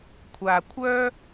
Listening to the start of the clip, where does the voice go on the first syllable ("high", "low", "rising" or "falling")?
low